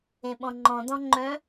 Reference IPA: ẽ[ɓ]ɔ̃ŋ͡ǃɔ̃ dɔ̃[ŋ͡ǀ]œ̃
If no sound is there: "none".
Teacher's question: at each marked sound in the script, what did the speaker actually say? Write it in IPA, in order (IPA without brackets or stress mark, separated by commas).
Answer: ɓ, ŋ͡ǃ